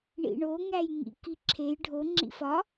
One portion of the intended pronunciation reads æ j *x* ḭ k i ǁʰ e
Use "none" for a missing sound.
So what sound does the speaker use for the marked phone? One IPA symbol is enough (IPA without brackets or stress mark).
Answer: ŋ